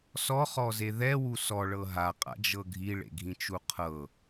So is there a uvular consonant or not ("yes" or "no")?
yes